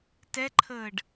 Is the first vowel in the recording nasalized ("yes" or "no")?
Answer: no